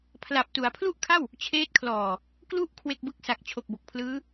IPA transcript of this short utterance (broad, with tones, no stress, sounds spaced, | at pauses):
pʰ l a˨˩ p̚ t u˩˦ a̯ pʰ l u˥˩ ʔ kʰ a˥˩ w | t͡ɕʰ eː˦˥ t̚ kʰ l ɔː˨˩ | k l u˦˥ ʔ kʰ w e˥˩ k̚ b ɯ˥˩ k̚ s a˨˩ k̚ t͡ɕʰ o˨˩ k̚ b o˨˩ k̚ pʰ l ɯː˦˥